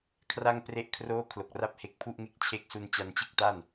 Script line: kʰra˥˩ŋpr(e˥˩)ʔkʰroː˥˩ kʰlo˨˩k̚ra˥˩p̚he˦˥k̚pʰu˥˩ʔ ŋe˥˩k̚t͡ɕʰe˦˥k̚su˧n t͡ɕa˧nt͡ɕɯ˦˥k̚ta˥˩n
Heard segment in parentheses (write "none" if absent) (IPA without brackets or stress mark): e˥˩